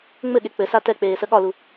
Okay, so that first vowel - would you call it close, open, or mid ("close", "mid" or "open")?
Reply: mid